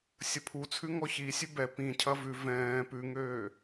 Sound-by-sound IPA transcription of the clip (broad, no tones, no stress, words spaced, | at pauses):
sʲəpʰut͡sʰʉ ŋɔçisʲʉ bɛ pĩcʰɐ vʉ vɛ̃ː pʉŋøː